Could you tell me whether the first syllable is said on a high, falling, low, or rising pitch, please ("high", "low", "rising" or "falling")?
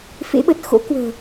rising